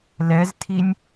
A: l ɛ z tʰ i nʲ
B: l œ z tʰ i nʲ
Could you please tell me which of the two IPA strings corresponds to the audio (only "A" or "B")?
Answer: A